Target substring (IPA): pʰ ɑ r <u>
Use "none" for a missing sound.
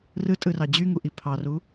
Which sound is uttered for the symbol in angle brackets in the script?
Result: u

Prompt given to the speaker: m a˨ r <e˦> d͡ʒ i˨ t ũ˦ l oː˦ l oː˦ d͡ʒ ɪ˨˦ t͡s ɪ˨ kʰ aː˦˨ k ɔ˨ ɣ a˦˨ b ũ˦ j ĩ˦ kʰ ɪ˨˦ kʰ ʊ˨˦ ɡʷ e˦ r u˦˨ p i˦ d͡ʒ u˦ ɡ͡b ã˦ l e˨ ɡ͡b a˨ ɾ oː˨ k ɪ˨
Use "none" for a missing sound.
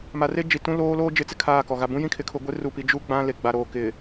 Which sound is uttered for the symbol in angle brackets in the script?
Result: e˦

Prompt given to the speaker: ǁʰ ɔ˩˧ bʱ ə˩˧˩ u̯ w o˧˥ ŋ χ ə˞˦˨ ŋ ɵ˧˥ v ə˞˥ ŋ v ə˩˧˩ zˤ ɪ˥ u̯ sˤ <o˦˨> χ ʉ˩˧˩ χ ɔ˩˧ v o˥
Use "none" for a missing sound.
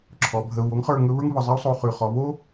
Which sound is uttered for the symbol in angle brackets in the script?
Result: o˦˨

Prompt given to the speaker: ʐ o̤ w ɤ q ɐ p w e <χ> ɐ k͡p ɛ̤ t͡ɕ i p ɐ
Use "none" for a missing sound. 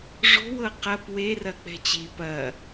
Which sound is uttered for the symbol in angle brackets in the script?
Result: r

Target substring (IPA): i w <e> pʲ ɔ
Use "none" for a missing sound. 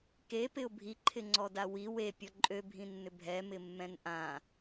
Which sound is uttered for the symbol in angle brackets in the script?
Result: e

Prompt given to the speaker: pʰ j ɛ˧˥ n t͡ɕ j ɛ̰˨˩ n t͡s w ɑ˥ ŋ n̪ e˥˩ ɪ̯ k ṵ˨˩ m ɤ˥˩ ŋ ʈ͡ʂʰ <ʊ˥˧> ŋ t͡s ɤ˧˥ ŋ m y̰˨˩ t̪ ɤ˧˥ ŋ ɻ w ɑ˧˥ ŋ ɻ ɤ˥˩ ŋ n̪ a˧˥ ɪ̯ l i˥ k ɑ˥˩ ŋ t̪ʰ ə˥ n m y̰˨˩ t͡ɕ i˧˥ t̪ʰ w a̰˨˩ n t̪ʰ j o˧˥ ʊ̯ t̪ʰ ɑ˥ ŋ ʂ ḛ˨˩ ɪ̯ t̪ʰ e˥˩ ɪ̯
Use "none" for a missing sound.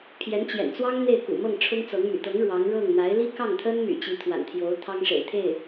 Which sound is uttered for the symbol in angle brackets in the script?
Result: ʊ˥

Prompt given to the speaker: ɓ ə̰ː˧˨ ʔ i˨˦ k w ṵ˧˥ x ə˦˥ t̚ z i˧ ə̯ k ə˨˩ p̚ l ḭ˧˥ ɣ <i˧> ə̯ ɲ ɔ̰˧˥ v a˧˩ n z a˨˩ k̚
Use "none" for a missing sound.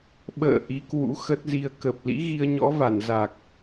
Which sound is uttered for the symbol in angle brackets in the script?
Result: i˧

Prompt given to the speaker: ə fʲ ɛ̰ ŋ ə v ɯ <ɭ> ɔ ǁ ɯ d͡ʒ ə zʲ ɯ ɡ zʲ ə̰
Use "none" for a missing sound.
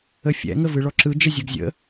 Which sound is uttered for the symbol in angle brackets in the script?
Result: ɭ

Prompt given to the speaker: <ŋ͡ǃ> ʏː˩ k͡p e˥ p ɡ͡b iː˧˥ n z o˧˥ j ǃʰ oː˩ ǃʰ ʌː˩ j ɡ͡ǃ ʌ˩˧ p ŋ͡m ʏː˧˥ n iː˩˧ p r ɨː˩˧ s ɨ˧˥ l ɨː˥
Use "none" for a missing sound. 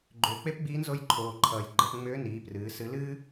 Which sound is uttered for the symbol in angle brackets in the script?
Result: ɡ͡ǃ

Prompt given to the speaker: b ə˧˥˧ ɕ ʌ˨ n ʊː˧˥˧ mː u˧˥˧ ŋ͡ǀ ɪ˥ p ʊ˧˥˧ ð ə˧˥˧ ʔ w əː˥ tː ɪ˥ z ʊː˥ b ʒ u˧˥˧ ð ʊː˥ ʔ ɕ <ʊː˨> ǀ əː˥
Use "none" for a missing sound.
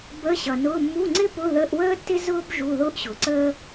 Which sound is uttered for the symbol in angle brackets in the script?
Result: ʊː˨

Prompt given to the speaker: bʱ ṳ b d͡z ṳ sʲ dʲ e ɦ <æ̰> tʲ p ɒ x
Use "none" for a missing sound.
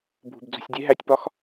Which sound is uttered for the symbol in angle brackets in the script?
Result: æ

